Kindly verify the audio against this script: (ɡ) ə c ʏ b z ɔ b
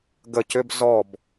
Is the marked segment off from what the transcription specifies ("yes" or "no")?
no